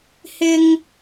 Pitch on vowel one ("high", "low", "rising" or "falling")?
high